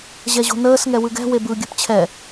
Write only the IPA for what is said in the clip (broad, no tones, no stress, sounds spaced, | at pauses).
ʑ ɛ ʑ o̤ n əː s ŋ ɛ w ɯ ɡ ɛ̤ w e b ɯ ɡʲ ɨ p t͡ɕʰ ɛ